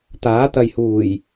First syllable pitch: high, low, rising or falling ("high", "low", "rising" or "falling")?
rising